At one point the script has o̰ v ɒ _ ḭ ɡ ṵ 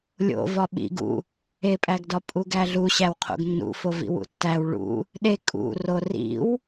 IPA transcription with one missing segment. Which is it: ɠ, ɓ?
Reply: ɓ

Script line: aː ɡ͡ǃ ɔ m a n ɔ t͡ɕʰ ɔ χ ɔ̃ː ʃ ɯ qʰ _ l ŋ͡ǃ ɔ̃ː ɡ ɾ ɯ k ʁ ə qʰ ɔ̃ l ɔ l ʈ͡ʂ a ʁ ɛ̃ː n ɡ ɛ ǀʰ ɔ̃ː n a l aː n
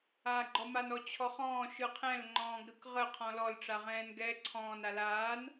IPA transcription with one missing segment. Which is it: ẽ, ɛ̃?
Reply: ɛ̃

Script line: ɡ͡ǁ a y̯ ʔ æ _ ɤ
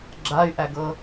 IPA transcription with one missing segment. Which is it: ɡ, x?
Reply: ɡ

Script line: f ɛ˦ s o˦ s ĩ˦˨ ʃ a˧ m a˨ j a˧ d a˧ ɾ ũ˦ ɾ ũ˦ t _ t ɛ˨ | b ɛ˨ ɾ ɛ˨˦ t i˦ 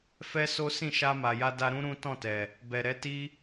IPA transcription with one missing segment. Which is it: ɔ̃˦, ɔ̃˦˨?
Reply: ɔ̃˦˨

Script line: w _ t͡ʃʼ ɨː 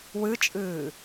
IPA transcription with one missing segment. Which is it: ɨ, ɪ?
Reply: ɨ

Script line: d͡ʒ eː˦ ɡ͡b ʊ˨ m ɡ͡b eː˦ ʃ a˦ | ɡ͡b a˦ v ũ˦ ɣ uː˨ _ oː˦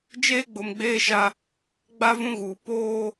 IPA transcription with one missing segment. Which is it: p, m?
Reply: p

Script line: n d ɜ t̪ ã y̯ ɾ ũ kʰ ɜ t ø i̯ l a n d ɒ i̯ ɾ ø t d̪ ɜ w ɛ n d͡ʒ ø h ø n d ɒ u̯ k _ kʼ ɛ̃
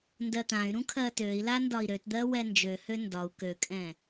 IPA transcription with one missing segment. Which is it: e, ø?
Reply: ø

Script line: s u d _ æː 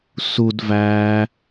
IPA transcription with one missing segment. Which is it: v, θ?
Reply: v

